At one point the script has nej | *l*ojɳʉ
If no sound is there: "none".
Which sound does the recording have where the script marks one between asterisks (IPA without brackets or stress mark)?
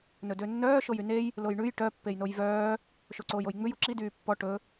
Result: l